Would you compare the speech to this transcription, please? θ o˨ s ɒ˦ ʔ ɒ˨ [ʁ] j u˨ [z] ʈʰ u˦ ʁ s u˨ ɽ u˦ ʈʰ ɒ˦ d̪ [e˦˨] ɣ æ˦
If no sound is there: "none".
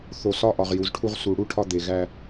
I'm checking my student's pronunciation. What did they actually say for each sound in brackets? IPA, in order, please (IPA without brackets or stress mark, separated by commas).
ʁ, z, e˨